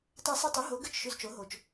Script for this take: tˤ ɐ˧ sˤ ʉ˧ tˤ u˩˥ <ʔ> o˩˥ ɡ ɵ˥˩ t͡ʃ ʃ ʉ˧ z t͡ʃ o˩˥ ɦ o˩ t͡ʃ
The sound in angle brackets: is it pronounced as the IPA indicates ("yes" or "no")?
no